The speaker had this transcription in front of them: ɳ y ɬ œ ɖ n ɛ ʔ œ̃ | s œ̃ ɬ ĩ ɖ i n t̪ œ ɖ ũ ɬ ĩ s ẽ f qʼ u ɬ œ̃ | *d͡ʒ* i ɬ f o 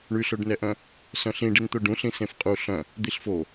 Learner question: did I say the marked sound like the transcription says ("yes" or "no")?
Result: no